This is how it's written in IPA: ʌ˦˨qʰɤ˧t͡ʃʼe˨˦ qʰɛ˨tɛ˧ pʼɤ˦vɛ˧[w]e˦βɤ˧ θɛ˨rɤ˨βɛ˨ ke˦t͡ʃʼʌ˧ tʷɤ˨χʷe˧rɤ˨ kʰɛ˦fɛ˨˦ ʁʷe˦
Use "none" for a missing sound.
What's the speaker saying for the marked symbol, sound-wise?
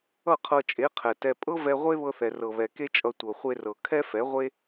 ʁʷ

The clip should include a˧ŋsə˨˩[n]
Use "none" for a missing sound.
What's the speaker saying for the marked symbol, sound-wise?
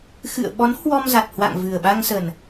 n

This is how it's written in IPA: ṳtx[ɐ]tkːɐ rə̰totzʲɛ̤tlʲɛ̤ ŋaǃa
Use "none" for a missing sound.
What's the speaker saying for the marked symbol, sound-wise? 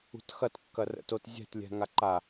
ɐ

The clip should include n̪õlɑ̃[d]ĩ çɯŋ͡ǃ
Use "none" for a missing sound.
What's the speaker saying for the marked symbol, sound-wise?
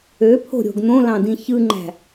d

